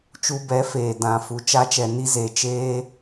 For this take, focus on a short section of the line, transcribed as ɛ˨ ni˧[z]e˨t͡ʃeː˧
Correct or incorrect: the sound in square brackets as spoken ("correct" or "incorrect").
correct